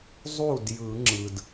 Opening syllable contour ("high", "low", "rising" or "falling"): falling